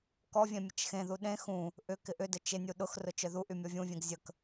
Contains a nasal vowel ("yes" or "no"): yes